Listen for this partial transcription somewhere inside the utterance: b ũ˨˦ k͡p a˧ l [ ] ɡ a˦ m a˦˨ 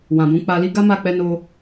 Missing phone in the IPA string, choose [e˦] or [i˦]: i˦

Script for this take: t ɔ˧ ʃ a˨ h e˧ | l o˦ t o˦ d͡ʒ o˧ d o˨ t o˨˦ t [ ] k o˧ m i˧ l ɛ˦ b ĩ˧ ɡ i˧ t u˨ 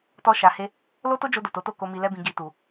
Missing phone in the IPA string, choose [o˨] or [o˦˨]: o˦˨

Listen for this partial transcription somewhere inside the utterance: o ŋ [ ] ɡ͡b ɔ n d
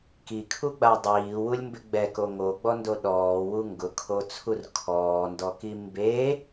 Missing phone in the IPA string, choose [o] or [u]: o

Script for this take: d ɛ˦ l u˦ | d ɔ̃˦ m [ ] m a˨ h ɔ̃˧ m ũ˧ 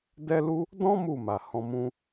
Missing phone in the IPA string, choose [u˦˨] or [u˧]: u˦˨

